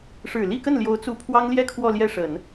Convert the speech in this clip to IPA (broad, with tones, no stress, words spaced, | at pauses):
ʂɻ̩˨˩li˥˧kə˥˩nljo˧˥ʊ̯ t͡su˧˥pʰwɑ˥ŋljɛ˥˧ kʰwɔ˥˧ljɛ˥˩ʂə˨˩˦n